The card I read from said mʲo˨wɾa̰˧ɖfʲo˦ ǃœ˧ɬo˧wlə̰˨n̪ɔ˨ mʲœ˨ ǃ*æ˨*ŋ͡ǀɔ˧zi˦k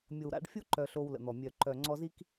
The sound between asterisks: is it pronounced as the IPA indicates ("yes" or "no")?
no